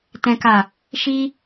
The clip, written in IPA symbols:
tɛ̃˦ka˦˨ | ʃi˦

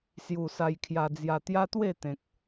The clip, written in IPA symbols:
sju˨˩ sa˧jkʰja˧d͡zja˧ t̪ja˦t̪we˥˧ t̪ẽ˨k̚

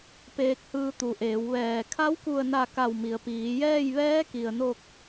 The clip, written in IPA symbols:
peː˧k̚hɯː˧t̪u˩˧ʔeː˩˧w ʋɛː˧˩ kʰa˧˥wku˧˩ə̯na˧˩ ka˧˩wmi˩ə̯ piː˩˧jɛː˥˨j ʋɛː˧˥ki˩ə̯no˧˩k̚

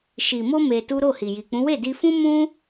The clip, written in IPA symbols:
ʃi˨mo˧ me˧tu˦ ɾo˦˨hi˨ji˨k͡pũ˨˦ we˦˨di˧fũ˦mũ˦

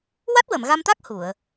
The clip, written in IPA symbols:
wa˦˥t̚wə˨˩˨mɣa˧mt̪a˦˥k̚ hu˨˩˨ə̯

